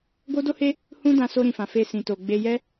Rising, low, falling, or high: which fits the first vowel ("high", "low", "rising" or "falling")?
high